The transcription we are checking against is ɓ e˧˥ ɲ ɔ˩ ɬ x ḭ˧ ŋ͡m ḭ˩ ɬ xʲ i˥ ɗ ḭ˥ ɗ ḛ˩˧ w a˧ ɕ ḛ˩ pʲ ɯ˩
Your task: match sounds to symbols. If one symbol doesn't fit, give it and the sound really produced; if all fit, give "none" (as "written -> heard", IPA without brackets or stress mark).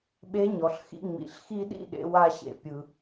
xʲ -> x